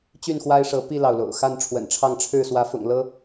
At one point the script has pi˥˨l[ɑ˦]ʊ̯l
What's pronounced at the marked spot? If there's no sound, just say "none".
ɑ˩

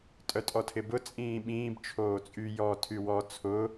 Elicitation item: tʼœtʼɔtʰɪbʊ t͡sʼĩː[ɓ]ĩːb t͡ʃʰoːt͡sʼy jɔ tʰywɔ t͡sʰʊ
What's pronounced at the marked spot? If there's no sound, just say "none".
ɓ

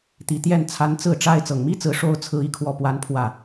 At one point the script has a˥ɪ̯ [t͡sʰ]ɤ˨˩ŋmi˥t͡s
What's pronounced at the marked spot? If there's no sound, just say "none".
t͡s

